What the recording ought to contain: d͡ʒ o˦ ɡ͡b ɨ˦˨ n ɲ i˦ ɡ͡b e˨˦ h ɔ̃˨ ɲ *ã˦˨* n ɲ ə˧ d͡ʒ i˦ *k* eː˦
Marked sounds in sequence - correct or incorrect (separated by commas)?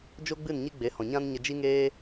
incorrect, incorrect